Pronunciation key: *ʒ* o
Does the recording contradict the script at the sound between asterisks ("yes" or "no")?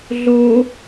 yes